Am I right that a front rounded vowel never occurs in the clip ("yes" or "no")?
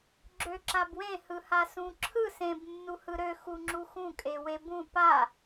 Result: no